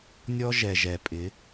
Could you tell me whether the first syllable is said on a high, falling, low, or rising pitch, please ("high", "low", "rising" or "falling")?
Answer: high